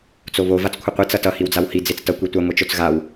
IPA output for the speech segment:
t͡s o β o v a t͡s kʷʰ ʌ qʷ i t͡s ʌ t ʌ h i w d͡z a w h i d͡z e t͡s t ʌ kʷ i tʷ ɛ ŋʷ e t͡ʃ o t͡s ɣ a w

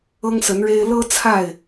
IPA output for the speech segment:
ɤ˦ ŋ s ə˨˦ n ɻ e˦ ɪ̯ l ɤ˦ t͡sʰ a˥˨ ɪ̯

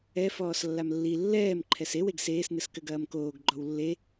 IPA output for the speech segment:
ɛ f ɔː s lː a m lː i lː ɛː m ǃʰ ɛ s e w e ɡ s eː s n ɨ s k ɘ ɡ ɐː m k oː ɡ ɡ͡ǃ ɔ w lː e

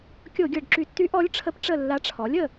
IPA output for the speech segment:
kʲ o˧˩˧ ɡʲ ɤ˨˩ ɖ ǁ y˧˩˧ tː y˧˥ ʔ ɔ˧˥ lʲ ʈ͡ʂʰ ə˧˥ p ʈ͡ʂ ə˦˨ lː a˧˥ ʈ͡ʂʰ ɔ˩˥ lʲ ə˨˩

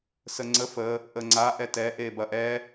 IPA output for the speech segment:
s ə ŋ͡ǀ ə f ə | ʔ ə ŋ͡ǀ a ʔ ɛ t ɛ ʔ e b ɐ ʔ ɛ

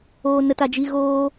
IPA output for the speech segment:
oː˦ n ə˦ t a˦ d͡ʒ i˦ ɣ oː˦

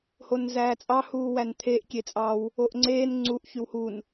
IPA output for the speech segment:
h o n z æː t͡sʼ ɑ h uː w æ n t̪ʰ e ʔ kʲ e t͡sʼ ɑ w | o ʔ ŋ͡ǀ eː n ŋ͡ǀ u ʔ ç y w h u n

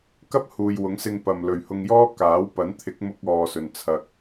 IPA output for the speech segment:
k ɐ˥ p̚ h uː˨ j w ʊ˨˥ ŋ s ɪ˧ ŋ p ɐ˨ m l ɵ˨ ɥ h ʊ˧ ŋ j ɔː˥ k aː˨˥ w p ɐ˨˥ n t̪ʰ ɪ˨˥ k̚ m ʊ˧ k̚ ɔː˨ s ɵ˨ n t͡sʰ ɐ˧ k̚

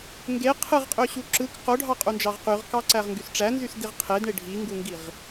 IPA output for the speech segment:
ŋ ɡ e qʰ ɯ ʁ qʼ ø ɕ u ǁ ɯ k q o ɖʱ ɑ qʼ u n d͡ʒ ɑ ʁ q y ʁ k ɑ ǀ æ ʁ ŋ ɡ y s ʈ͡ʂ æ n z y s d i ʁ qʰ e d ɳ e ɖʱ i ŋ ɡ u ŋ ɡ i ʁ

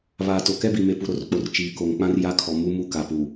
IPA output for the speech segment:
β aː˨ t o˨ k ɛ˦ b i˨ m e˨ p u˨ ɾ o˦ r k͡p o˨ r t͡ʃ iː˨ k o˨ ŋ k͡p ã˦ r j a˦ kʰ ɔ˨ m u˦ m u˦ k a˨ p u˨

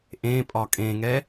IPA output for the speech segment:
ʔ ẽ pʼ ɒ kʼ ẽ ŋ ɛ

